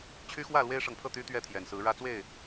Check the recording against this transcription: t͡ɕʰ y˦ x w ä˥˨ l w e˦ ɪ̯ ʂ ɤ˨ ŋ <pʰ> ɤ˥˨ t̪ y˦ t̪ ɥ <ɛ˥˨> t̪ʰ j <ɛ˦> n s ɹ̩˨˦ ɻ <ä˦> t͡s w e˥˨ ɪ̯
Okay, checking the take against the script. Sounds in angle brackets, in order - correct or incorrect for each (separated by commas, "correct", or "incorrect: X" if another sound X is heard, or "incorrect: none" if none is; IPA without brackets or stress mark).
correct, correct, incorrect: ɛ˨˩, correct